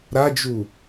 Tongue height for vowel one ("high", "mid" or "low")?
low